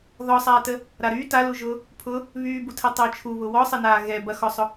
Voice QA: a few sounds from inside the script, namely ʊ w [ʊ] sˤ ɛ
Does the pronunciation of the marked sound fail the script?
yes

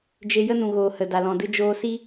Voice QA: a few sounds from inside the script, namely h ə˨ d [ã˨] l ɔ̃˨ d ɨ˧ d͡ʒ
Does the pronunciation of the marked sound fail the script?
yes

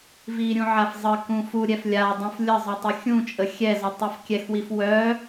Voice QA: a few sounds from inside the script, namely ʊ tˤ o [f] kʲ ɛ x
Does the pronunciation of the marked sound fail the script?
no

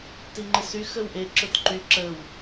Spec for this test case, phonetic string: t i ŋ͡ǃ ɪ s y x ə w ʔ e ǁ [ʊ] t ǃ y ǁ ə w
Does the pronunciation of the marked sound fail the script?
no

